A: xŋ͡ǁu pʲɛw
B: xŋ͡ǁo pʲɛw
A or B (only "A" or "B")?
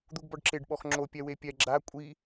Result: B